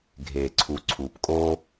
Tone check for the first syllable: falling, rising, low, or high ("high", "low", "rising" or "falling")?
low